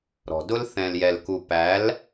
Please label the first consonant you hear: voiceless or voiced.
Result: voiced